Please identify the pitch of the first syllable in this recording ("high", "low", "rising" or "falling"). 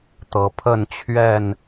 rising